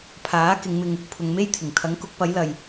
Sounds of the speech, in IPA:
pʰ aː˨˥ k ɪ˨˧ ŋ m ɪ˧ ŋ | pʰ ʊ˨ ŋ m e˥ j t̪ʰ ɪ˨˩ ŋ t̪ʰ ɐ˨˥ ŋ k ʊ˨˥ k̚ p ɐ˨˥ j l ɐ˨ j

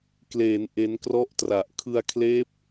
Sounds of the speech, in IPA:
k l eː˩˦ n ʔ e˦˥ n k r ɔ˥˩ ʔ t r a˨˩ ʔ kʰ ɯ˧ a̯ kʰ l eː˦˥ p̚

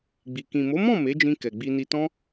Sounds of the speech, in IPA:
ɡ͡b i˨ k ĩ˨ m o˨˦ m ɔ̃˦˨ m e˨˦ d͡ʒ ĩ˧ k ɛ˨ ɡ͡b i˧ n i˧ t ɔ̃˦

